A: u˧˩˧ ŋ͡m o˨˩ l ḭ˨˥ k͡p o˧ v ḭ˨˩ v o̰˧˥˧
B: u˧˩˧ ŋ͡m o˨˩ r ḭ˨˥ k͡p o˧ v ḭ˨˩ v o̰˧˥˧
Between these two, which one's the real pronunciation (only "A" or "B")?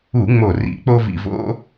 B